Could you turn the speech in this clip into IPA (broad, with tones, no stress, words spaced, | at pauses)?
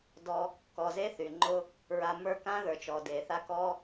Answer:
dɔ˧ | kɔ˨ze˦ θy˨ŋ͡ǃʊ˦ | ɹa˧ mə˞˦kã˦ðə˞˨ t͡ʃɔ˨de˨θa˦ kɔ˦